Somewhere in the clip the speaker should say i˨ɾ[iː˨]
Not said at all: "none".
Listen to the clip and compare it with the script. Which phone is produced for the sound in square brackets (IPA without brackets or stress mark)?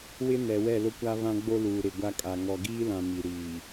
iː˨